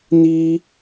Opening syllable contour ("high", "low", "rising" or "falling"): high